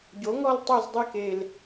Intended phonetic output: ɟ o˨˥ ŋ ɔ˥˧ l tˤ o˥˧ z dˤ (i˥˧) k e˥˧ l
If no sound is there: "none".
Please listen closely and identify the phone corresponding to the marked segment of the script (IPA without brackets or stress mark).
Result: i˥˧